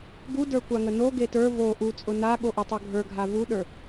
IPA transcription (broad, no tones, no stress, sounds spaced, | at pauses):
ɡ u d ə˞ kʷ a ŋ ə n o ɡ e t ə˞ v o ʔ u t͡sʼ ʊ n a ɠ o ʔ ʊ tˤ o ɡʱ ə˞ ɡʱ a v u ɗ ə˞